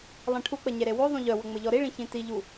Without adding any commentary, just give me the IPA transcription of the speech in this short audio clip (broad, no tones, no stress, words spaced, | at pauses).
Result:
lˠẽʈʰuk͡pə ɲeɾewoðˤũ ʎœwə ŋ͡mɘʎɔɾiɭĩ çĩtiʎu